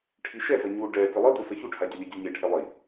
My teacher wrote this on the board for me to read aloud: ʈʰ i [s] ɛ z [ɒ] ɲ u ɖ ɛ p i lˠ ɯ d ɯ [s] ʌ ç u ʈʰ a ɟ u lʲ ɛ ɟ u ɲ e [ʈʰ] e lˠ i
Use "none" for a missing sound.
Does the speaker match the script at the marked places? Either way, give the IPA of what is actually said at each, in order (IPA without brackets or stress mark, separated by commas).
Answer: ʃ, ʌ, s, ʈʰ